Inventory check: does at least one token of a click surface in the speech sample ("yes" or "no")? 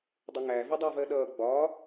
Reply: no